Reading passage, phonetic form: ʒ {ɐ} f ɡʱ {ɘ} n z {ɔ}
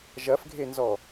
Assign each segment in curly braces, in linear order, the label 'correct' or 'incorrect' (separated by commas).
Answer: correct, incorrect, correct